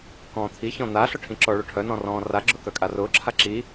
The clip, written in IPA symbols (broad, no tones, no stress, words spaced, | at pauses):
kɔ̃ːt̪ʰi çɔ̃n̪a ɬɔʈʰĩǁɔ ɭoʈʰœ nɔ̃rɔ̃ːra ɡ͡ǁʊkœkʼarʊː ǁʰaǁi